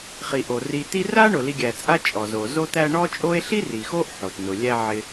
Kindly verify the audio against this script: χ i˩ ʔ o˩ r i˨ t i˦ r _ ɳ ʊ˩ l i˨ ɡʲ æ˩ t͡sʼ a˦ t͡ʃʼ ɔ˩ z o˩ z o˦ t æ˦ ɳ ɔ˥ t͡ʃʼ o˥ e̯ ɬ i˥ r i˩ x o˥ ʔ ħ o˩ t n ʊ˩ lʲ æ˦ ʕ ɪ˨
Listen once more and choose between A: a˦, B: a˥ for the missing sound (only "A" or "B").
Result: B